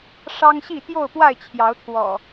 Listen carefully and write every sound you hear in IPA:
ʂɑ˦ŋɕi˥˨ t̪jo˥˨ʊ̯pwa˥˨ɪ̯t͡ɕʰjɑ˨˦ʊ̯t̪ʰwɔ̰˨˩

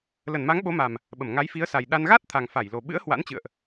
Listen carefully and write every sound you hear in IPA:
lə˧˩nma˨˦ŋɓo˨˦ma˨˩m | ɓə˧˩mŋa˨˦jfi˨˦ə̯ sa˨˩jɗa˧n ɣa˦˥t̚t̪ʰa˨˩ŋfa˧˩jlo˨˩ ɓɨ̰˧˥ə̯hwa̰˧˥nt͡ɕɨ̰˧˨ə̯ʔ

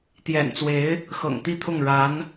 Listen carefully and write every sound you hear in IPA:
t̪jɛ̰˨˩nt͡swe˧˥ɪ̯ | xɤ̰˨˩ŋt̪i˥˧t̪ʰʊ˥˩ŋ ɻa˧˥n

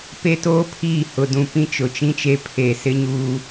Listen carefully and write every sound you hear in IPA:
pe˦toː˦pʰiː˦˨ hʊ˨dũ˨ pĩ˦t͡ʃʊ˨t͡ʃĩ˦t͡ʃe˦ pʰe˨sɪ˦ɲuː˦

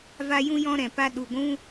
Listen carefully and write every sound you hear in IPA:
va˧ jũ˧jɔ̃˧ ɾɛ̃˨pa˦ ɗu˨ɡʷũ˦

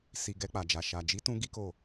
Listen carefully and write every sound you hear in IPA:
si˨ ɡɛ˧k͡pa˨d͡ʒa˨ ʃa˨d͡ʒi˨˦tũ˧ ɡi˦ko˦˨

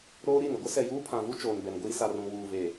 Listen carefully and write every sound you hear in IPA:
ɾoː˦ ɾi˦˨n ɪ˨ɡʷɪ˦sɛ˨ juː˦pʰã˨vu˦ t͡ʃoː˨nbɛ˨nɡʷiː˦ sa˨rũ˨ wuː˨veː˨

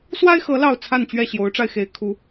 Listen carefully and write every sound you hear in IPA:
swa˦ɪ̯xɤ˨˦ lɑ˥˨ʊ̯ t͡sʰa˥˨nt͡ɕɥɛ˥˨ ɕjo˨˦ʊ̯ʈ͡ʂa˧ɪ̯xe˨˦ɪ̯ kʰu˨˦

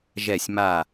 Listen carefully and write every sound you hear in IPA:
ʒɛ˧˩sʲma˧˩

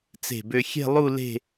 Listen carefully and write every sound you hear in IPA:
t͡se̤˧˩bø˧ xʲe̤˥˧lˠu˥˧ le̤˥˧

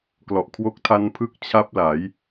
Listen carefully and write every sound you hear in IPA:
klɔ˨˩ʔkʰwo˦˥k̚tʰa˦˥n pʰɯ˥˩k̚ t͡ɕʰa˦˥p̚ la˩˦j

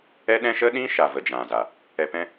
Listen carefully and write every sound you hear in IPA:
ɛ˦ ɗɛ̃˦ ʃə˦ ɗĩ˦ʃa˨ və˨d͡ʒã˨za˨ | ɛ˨ pɛ̃˦

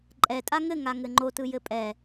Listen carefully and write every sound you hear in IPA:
ǃʼɛtʼa ŋɘŋaŋɘ ŋ͡ǃotɯjɘ pʼɛ

